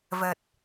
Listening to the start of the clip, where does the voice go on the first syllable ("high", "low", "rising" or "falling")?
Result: low